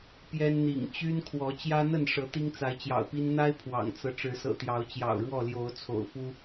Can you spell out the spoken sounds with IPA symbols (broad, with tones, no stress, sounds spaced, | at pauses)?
p j ɛ˦ n n̪ ḭ˨˩ ŋ t͡ɕ y˦ n kʰ w ɔ˨˦ t͡ɕ j ä˦ n̪ ə˥˨ n ʂ ɤ˨˦ t̪ i˦ ŋ t͡s a˨˦ ɪ̯ t͡ɕ j ɑ̰˨˩ ʊ̯ p i˦ n n̪ a˦ ɪ̯ pʰ w ɑ̰˨˩ ŋ t͡s ɤ˦ ʈ͡ʂ ɻ̩˨˦ s ɤ̰˨˩ t̪ j ɑ˨˦ ʊ̯ t͡ɕ j ɑ̰˨˩ ʊ̯ ɻ w ɔ˥˨ l j o˨˦ ʊ̯ t͡sʰ o̰˨˩ ʊ̯ f u˦